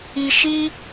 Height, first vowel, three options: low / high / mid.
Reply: high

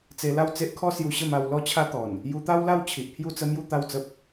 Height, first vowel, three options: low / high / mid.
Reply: mid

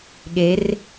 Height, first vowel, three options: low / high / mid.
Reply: mid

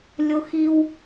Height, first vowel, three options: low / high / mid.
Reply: high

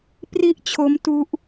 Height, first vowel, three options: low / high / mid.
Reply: high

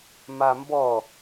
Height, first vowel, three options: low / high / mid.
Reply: low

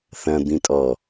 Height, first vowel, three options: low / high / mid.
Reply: low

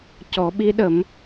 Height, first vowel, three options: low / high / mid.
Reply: mid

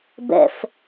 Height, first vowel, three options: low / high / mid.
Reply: mid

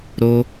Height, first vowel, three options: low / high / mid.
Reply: mid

